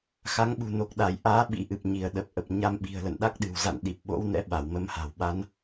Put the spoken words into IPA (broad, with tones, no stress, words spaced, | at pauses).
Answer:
xa˨˦ŋɓṳ˨˩ no˨˩k̚ɗa˧˩jʔaː˨˦ ɓḭ˧˥ʔɨ˨˩p̚ɲi˧˩ə̯ ɗə˨˩p̚ʔə˨˩p̚ ɲa˧mɓi̤˨˩ə̯ lə̰˧˨nɗa˦˥k̚ɗɨ̤˨˩wza̰˧˨n ɗi˨˩p̚ɓo̰˧˥wnɛ̰˧˥ ɓa˧˩wmə˨˦mha̤˨˩wɓa˨˦n